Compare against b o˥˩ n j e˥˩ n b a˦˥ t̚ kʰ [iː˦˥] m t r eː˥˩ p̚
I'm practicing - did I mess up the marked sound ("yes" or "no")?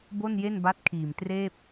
yes